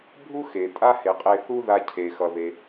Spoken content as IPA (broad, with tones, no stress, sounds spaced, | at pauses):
bʱ u˥ x e˩ tʼ a˥ h e˩ qʼ e˧ θ u˥ ð a˧ cʰ e˩ x ʌ˩ ð e˩